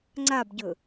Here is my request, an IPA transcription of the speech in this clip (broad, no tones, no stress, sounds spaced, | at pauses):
ŋ͡ǀ a b ɟ ɵ